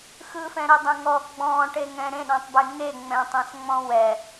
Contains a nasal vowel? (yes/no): yes